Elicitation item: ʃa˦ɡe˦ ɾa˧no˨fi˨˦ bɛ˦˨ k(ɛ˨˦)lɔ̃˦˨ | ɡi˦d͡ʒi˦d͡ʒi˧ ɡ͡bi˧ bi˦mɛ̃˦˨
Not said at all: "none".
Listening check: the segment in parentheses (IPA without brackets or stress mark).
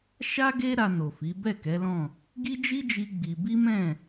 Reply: ɛ˨˦